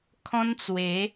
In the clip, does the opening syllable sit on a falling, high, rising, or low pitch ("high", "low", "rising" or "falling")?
high